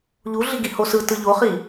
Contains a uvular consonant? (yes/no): yes